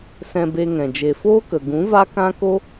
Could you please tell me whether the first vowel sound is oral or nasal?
nasal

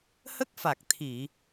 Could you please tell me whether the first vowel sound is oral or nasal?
oral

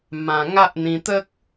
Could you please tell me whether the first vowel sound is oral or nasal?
nasal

